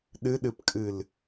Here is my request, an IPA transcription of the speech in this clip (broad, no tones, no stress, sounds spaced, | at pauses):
ɗ ɨ ɗ ɨ p kʼ ɨ l